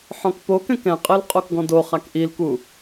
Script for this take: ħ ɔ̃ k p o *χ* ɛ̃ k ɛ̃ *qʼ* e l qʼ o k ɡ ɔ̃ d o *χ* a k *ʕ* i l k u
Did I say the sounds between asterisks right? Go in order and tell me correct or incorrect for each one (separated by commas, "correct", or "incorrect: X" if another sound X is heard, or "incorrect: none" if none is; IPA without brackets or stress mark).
incorrect: k, correct, correct, incorrect: ʔ